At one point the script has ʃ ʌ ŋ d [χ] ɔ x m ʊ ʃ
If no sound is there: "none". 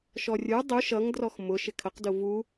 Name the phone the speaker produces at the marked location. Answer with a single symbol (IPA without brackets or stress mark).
r